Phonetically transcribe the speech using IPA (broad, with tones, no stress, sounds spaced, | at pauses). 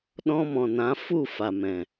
ɗ ɔ̃˧ m ɔ̃˨ n ã˨˦ f u˦˨ f a˨ m ɛ̃˨